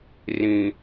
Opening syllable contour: low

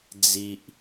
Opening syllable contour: low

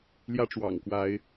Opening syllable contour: high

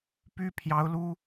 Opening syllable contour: high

